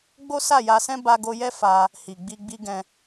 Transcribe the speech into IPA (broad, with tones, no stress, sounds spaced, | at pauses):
ɡ͡b o˦ s a˦˨ j a˧ s ɛ̃˦ b a˧ ɡ o˧ j ɛ˦ f a˧ | h i˨ ɡ͡b i˧ ɡ͡b i˦ ɡ ɛ̃˧